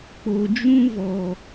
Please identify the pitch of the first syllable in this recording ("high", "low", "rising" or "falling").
low